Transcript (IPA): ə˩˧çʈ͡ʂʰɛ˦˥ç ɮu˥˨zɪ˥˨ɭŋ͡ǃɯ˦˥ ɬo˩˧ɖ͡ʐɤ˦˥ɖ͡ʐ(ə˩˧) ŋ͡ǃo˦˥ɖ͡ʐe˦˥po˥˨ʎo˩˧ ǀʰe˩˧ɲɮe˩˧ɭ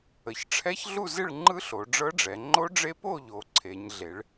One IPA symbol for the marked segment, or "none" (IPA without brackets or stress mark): ɛ˩˧